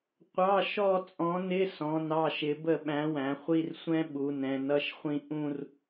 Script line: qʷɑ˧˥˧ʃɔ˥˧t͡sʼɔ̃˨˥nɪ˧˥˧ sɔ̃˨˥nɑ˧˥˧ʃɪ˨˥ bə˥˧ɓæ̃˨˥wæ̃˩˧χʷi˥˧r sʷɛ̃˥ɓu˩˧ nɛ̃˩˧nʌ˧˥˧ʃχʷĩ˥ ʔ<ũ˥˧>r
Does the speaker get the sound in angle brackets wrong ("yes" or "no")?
no